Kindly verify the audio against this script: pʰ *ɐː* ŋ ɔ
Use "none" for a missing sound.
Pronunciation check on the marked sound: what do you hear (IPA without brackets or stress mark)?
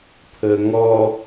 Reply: əː